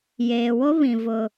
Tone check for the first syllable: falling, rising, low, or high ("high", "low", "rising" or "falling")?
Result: low